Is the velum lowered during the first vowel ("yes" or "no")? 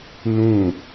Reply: yes